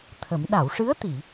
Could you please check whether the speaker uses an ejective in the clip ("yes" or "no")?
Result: no